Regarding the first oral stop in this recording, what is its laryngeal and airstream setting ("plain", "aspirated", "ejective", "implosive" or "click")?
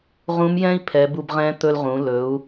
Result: aspirated